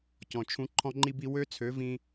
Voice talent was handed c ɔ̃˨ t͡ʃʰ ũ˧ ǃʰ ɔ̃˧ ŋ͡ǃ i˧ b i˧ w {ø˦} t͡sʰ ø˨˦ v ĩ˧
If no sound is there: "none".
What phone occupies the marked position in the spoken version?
ø˦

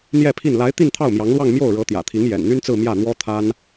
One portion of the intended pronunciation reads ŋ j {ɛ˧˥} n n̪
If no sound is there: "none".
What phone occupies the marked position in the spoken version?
ɛ̰˨˩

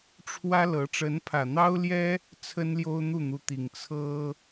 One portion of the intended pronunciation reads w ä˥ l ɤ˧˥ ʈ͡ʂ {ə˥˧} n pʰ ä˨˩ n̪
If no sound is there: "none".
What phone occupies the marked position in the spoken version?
ə˧˥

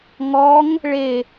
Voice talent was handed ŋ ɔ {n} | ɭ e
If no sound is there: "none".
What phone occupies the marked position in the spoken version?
ŋ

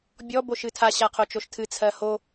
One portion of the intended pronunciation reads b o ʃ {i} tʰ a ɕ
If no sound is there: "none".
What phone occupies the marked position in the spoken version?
ɨ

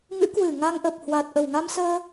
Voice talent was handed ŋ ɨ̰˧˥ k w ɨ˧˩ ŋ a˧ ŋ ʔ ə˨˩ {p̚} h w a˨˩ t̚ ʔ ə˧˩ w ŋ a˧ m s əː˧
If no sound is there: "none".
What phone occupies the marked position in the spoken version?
p̚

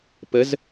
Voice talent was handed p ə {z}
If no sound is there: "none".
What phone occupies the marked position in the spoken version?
z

